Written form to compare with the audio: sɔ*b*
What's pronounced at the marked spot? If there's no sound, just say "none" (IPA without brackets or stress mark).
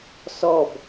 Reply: b